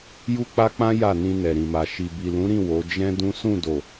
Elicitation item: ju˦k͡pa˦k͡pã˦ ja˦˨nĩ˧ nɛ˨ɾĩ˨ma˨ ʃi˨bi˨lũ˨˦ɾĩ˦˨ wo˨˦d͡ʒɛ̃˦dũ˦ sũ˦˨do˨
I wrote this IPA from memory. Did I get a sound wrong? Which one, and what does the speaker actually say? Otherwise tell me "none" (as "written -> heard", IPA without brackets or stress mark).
none